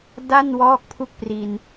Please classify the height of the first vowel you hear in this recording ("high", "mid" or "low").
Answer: low